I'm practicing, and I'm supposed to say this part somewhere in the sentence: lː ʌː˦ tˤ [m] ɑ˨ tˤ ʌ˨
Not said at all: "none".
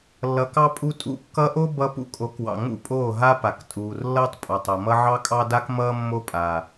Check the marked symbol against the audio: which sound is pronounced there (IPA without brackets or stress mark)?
pʼ